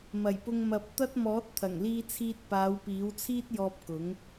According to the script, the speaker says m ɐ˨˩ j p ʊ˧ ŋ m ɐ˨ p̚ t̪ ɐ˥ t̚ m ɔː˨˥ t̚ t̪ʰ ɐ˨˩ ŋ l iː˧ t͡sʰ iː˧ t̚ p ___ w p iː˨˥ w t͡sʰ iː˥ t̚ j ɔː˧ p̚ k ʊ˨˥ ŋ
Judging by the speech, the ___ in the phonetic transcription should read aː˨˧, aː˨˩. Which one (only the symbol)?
aː˨˧